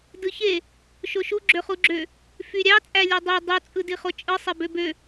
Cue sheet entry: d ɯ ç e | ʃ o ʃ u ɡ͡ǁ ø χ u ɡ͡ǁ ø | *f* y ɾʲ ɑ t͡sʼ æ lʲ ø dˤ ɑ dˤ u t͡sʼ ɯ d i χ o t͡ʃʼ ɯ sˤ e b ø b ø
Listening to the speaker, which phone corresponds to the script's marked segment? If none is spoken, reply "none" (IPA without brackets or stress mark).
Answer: f